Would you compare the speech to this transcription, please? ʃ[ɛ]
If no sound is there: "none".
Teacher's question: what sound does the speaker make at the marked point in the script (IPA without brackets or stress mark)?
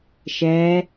ɛ